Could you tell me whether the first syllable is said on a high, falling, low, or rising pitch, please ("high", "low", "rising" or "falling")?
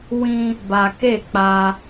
high